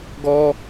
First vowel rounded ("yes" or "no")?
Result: yes